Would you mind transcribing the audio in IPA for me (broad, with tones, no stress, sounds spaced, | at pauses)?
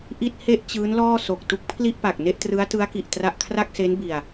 ʔ i˥˩ t̚ h e˥˩ ʔ t͡ɕ ɯː˦˥ n l ɔː˥˩ s o˨˩ k̚ t u˦˥ k̚ pʰ l i˥˩ ʔ p a˨˩ k̚ n e˥˩ ʔ t r ɯ˦˥ a̯ t ɯ˦˥ a̯ k i˨˩ ʔ t r a˥˩ ʔ kʰ r a˥˩ k̚ s e˦˥ n b i˧ a̯